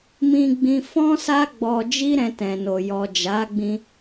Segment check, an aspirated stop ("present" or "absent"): absent